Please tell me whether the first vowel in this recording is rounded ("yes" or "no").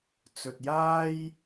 yes